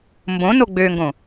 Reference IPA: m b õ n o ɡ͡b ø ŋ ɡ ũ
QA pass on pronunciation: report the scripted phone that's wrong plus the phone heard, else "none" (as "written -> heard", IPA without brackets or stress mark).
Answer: ũ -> õ